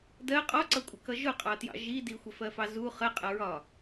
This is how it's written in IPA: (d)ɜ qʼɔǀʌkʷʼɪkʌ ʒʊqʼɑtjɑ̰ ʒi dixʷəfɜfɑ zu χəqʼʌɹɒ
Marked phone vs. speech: correct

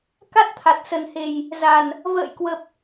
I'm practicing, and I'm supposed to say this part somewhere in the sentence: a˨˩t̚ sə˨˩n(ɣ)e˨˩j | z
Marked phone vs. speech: incorrect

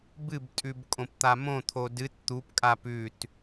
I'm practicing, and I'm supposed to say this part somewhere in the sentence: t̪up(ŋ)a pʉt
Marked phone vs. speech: incorrect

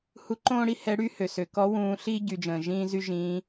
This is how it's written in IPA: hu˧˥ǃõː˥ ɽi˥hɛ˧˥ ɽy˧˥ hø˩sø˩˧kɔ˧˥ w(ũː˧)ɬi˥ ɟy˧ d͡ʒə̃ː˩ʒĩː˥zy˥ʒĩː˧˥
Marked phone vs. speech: correct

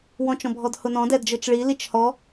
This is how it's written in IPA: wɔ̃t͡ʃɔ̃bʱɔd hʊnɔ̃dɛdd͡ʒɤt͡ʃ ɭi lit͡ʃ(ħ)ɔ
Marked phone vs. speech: incorrect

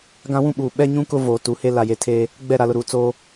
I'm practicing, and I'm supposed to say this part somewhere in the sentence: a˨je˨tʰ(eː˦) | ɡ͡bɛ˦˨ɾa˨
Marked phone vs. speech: correct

